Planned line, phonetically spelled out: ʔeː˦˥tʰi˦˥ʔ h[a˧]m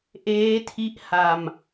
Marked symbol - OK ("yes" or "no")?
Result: yes